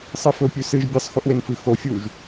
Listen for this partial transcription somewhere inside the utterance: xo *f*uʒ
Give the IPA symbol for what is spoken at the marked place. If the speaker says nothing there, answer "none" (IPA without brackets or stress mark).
fʲ